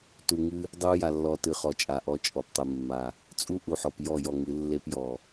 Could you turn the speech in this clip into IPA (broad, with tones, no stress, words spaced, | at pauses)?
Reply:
tu˨ŋɨ˦ | dˤu˦ ja˨lːɔ˨ tɨ˨χɔ˨t͡ʃʼa˨ ʔɔ˨ t͡ʃʼɔ˨ptˤɨ˨ mːa˨ | t͡sʼu˦ʔu˨ħɔ˨p jɔ˦˨jɔ˦˨ŋɨ˨˦ lːe˦p jɔ˨